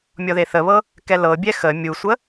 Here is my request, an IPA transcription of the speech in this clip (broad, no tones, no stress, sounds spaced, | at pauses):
mʲ ɔ ð e θ ə β ɤ | k ɛ l ɤ bʲ ɛ x ə mʲ u sʷ ə